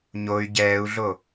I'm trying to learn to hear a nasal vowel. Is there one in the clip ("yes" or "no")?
no